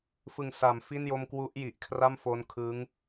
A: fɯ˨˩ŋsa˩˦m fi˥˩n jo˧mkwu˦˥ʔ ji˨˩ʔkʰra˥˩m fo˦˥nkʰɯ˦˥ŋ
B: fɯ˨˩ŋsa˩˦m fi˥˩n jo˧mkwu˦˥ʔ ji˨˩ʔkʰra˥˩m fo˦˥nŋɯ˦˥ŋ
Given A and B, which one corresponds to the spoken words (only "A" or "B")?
A